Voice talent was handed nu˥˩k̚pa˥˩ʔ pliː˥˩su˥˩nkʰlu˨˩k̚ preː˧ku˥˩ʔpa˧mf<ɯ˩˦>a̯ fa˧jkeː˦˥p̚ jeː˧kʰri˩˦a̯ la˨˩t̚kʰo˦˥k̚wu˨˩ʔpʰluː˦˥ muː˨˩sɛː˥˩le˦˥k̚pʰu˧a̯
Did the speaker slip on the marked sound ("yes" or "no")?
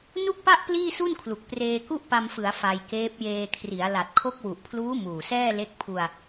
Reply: no